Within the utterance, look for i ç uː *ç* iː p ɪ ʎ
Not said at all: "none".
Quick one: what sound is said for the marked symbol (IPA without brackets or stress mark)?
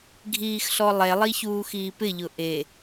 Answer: x